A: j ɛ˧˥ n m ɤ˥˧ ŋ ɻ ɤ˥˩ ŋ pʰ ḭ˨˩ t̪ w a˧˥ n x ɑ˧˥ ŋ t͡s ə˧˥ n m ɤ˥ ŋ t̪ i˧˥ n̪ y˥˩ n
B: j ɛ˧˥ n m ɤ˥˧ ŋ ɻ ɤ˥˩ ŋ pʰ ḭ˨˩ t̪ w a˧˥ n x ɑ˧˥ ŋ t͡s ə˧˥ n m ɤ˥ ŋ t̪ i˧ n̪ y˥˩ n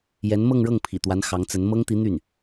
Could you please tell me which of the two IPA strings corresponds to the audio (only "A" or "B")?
A